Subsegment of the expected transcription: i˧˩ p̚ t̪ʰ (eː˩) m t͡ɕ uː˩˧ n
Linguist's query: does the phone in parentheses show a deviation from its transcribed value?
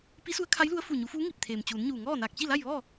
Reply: no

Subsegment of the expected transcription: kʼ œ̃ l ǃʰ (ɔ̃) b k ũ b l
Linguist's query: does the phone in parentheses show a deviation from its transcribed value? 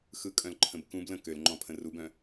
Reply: yes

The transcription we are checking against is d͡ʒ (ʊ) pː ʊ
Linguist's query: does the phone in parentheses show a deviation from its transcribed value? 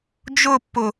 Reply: no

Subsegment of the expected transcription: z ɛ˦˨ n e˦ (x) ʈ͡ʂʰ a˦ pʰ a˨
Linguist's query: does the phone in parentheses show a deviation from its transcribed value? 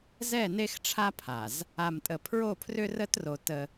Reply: no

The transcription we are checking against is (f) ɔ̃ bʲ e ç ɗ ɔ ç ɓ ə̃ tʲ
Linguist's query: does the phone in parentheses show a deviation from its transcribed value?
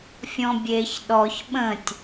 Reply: yes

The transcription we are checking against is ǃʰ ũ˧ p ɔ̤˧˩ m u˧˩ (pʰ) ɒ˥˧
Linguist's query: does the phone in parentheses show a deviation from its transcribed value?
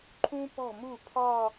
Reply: no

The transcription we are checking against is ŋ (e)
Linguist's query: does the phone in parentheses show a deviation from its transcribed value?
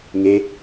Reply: no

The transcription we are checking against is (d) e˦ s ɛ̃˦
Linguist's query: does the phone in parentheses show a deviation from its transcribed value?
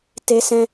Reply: yes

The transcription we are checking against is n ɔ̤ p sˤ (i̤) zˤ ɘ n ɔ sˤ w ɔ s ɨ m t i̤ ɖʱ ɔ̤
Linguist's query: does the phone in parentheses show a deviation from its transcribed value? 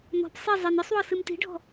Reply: yes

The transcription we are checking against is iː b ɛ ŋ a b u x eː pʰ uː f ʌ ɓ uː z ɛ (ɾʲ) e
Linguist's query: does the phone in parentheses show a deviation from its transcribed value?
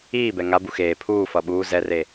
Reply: yes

